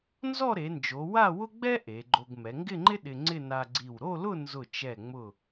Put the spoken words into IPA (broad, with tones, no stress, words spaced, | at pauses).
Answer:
nzɔ˥˧ɾe˩˧nd͡ʒo˩˧ wa˥˧wʊ˥ɡ͡bɛ˥ ʔe˩˧ɡ͡ǃo˧ɡ mɛ˩˧ŋɡɪ˥˧ŋ͡ǃɪ˥ ɗɪ˧ŋ͡ǀɪ˥˧ na˧ɡ͡ǀi˧˩w ɾo˥˧lʊ˥˧nzʊ˧˩ t͡ʃɛ˧˩ŋ͡mʊ˧˩